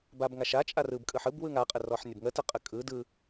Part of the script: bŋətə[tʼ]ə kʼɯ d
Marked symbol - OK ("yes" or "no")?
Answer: no